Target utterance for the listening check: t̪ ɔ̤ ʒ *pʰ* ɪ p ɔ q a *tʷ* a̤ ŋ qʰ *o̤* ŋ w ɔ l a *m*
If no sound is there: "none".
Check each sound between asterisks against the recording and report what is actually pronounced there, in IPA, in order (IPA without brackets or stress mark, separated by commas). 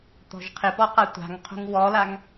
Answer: qʰ, tʷ, o̤, ŋ